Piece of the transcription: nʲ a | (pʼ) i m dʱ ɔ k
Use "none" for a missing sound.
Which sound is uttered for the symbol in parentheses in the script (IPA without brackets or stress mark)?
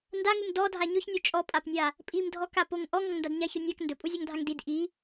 pʼ